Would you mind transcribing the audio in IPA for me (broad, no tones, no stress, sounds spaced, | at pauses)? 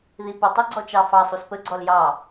ð i p ə tˤ i ɡ͡ǀ ɔ t͡ʃ ɑ f ɑ sˤ u s p ə ɡ͡ǀ ɔ l j ɑ